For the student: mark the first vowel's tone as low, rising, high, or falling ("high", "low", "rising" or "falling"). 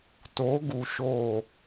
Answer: rising